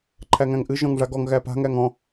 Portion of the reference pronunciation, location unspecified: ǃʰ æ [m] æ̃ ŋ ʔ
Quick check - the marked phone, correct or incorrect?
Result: incorrect